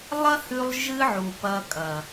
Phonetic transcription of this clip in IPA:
lˠ ɐ˦ h ʉ˧ lˠ ʒ ɨ˦ ʕ u˨ p ɐ˧ kʼ ɐ˨

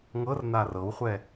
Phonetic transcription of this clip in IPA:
ŋ ɤ r n a r ɤ w χʷ ɛ

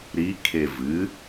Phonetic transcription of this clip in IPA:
ɾ i kʰ e v ɨ

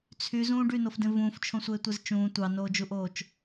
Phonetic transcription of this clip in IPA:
t͡sʰ y z ũː ɖ y n o f d ẽ v ũː f t͡ʃʰ õ sʷ eː tʷ e z t͡ʃ ũː tʷ ɑ n oː d͡ʒ u ʔ oː t͡ʃ

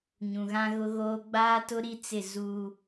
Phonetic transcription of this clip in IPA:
ɲ ũ˨ ɣ ã˦ ɣ ʊ˦ ɣ oː˦ ɡ͡b aː˦ t ʊ˦ ɾ i˦ t͡s ɪ˦˨ z uː˦

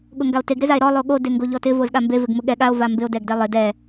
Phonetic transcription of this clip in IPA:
ɠ ʊ ŋ ɡ a o̯ t e ɡ ɾ ɪ z a e̯ ɾ ɔ lˠ o ɠ o d e ŋ ɡ o ʎ ɔ t ɪ v o z ɠ a m b e v ɪ ɡ m ʊ ɠ ɛ ɠ a o̯ v a m b ɪ o̯ d ɛ ɡ d ɛ lˠ ɪ d ɛ

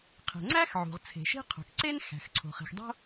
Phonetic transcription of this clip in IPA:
qʰ e̤˩ ŋ͡ǀ æ˥ x ʕ ṳ˩ ʁ t͡sʰ e̤˩ ʃ i̤˥ qʰ o̤˩ k ǀ e˥ n x æ̤˩ x ǀʰ o̤˩ χ i̤˩ x dˤ o̤˥

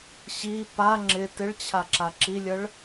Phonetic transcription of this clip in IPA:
ɕ i p a ŋ͡ǁ ɪ t ɪ ɭ t͡ɕʰ a ǁ a ǁ i lʲ ə ɭ

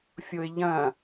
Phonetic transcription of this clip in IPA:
fʲ o ɪ̯ ʎ ɐ̃

